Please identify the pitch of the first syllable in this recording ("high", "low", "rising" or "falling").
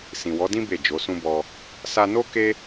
low